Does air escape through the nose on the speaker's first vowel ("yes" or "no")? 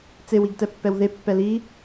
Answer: no